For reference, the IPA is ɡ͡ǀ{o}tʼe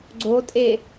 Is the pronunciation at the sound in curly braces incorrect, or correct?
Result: correct